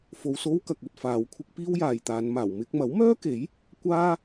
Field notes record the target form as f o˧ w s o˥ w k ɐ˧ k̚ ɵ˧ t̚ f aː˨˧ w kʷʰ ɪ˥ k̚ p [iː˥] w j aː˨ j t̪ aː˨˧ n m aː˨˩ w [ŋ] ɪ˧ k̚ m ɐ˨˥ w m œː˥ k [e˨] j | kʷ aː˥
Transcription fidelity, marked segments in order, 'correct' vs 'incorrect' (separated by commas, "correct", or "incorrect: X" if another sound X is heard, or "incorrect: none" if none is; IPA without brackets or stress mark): correct, incorrect: m, incorrect: e˨˥